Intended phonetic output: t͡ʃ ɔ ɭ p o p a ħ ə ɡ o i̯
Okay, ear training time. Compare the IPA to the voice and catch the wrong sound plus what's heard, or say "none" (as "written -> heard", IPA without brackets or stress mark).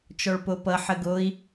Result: a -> ʌ